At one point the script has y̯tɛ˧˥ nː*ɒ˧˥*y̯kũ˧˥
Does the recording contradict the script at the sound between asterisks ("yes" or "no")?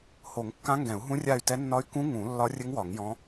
no